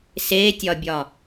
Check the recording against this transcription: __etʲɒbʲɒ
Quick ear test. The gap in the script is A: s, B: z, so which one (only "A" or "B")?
A